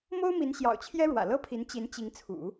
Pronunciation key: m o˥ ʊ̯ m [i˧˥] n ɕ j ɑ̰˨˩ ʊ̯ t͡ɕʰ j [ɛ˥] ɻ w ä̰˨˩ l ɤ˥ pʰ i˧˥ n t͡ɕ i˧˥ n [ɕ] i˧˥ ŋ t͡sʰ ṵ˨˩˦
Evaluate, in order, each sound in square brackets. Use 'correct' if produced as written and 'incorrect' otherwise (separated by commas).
correct, correct, incorrect